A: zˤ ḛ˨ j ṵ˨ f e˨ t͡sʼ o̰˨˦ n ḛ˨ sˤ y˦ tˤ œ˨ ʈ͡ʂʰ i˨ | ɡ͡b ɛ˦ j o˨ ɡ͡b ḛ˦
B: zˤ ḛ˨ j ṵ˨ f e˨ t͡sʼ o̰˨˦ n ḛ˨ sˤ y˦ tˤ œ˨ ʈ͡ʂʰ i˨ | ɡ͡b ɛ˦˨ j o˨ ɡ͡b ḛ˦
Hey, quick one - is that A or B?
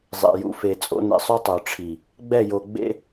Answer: B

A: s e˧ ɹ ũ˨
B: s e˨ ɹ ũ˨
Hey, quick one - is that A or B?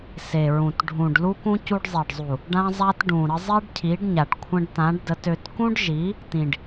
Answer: B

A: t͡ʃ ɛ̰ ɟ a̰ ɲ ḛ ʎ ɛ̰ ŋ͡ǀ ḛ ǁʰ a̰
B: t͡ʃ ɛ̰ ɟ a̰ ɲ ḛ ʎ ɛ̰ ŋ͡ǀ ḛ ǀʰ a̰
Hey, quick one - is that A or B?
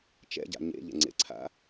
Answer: B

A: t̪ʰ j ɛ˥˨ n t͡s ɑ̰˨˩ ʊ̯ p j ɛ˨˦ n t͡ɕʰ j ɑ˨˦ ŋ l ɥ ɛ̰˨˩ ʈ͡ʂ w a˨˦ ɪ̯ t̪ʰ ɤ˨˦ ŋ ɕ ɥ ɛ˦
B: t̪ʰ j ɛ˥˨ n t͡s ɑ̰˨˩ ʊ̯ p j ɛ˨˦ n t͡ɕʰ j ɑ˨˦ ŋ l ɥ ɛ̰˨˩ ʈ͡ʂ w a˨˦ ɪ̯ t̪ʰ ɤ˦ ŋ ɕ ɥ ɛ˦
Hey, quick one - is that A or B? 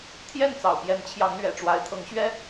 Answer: A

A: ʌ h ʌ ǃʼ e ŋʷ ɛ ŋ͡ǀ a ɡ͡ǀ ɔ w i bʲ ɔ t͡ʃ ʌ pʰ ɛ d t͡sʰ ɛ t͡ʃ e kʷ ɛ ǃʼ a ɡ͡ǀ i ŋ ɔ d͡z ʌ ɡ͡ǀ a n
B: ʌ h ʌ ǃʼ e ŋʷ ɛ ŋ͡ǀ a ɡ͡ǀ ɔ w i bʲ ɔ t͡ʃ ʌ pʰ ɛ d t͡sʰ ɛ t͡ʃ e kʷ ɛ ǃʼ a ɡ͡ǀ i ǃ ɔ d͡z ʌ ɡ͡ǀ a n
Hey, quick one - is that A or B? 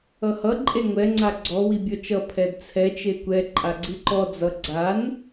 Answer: B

